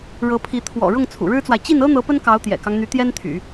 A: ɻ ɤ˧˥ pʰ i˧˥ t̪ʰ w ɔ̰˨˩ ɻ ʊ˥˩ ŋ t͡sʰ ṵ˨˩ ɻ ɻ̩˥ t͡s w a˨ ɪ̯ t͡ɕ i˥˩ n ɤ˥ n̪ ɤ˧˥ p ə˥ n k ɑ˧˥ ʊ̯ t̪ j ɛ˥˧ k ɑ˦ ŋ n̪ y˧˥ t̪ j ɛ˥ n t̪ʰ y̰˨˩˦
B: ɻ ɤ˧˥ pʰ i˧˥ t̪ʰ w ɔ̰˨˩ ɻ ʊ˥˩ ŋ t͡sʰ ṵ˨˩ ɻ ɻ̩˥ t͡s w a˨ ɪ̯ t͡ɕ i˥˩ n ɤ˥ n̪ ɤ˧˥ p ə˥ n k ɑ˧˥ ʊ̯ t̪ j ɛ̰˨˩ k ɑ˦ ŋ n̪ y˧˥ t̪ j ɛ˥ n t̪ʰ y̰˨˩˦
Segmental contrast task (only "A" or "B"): B